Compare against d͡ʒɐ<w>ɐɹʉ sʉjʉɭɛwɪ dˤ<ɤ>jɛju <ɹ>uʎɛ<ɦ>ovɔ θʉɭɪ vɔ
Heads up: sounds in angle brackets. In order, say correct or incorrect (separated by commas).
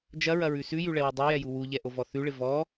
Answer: incorrect, correct, incorrect, incorrect